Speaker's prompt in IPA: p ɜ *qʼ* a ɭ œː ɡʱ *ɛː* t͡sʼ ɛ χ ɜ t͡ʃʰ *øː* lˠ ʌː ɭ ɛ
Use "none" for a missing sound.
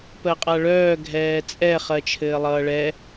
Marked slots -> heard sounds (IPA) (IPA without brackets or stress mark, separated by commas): qʼ, ɛː, ɘː